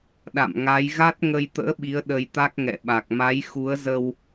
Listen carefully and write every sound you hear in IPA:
ɗ a̰˧˨ m ŋ a˨˦ j ɣ a˦˥ t̚ ŋ ə˧ j t̪ ə̰ː˧˥ ɓ i˨˦ ə̯ ɗ ə˧ j t̪ a˦˥ k̚ ŋ ɛ̰˧˨ ɓ a˨˩ k̚ m a˨˦ j x u˨˦ ə̯ z ə˧ w

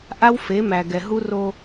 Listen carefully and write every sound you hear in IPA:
ʔ a˦ w f e˨˦ m æ˨ ɡ ɛ˨ ɦ u˦ r o˦

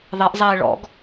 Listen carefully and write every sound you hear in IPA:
ðˤ e ʔ zˤ eː ɭ ɔ̰ ɡ

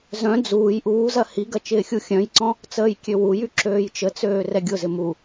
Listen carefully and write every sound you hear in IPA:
z œ̃ d͡z uː j ʔ uː z ɐ h i ɡ ɐ t͡ʃ ɪː xʲ u xʲ œ̃ j ǀ ɔ̃ | t͡s əː j kʲ ø w u j y ǁ øː j t͡ʃ ə t͡s øː r ɛ ɡʲ ʊ z ɪ m u

